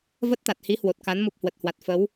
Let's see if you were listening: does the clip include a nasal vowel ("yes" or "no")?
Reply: no